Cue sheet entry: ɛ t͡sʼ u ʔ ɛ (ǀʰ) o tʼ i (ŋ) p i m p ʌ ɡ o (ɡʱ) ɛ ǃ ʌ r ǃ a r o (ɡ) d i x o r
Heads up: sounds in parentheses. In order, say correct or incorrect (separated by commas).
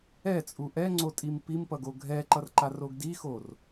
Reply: incorrect, incorrect, correct, correct